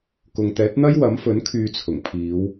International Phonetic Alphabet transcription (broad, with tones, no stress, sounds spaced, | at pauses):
k ʊ˨ ŋ t̪ ɛː˨˥ t̚ n̪ ɐ˥ j w ɐ˨˥ m f ɵ˨˥ n kʰ yː˨˧ t͡sʰ ʊ˨˩ ŋ pʰ iː˨˧ w